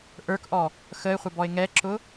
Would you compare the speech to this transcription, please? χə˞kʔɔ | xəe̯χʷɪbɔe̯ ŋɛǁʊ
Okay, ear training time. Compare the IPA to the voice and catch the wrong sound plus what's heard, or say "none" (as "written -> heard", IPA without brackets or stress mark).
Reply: χ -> ʔ